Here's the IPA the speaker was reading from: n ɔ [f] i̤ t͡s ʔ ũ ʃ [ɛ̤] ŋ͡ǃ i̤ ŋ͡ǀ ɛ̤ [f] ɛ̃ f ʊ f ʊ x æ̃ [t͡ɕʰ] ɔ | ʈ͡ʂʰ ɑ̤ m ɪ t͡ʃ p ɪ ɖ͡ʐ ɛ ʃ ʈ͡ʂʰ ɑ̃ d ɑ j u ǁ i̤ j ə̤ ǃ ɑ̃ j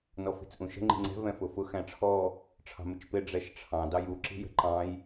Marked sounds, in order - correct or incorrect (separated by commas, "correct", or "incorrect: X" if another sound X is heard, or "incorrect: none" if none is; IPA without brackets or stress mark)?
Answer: correct, incorrect: ə̤, incorrect: v, incorrect: ʈ͡ʂʰ